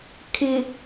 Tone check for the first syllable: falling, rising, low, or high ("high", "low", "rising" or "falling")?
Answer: low